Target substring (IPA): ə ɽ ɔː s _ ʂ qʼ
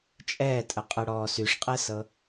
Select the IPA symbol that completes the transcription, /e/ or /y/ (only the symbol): y